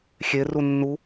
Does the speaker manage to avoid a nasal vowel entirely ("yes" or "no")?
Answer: yes